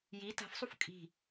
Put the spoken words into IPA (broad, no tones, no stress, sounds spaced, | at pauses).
j i t a̤ f sˤ u f kʼ i̤